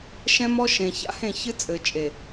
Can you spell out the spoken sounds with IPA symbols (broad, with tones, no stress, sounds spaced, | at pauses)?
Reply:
ʃ ɛ̃˦ m ɔ˦ ʃ ẽ˨ ç a̰˦ h ẽ˦˨ ç ɨ˦ t͡sʼ ɘ˨ t͡ʃʼ e˨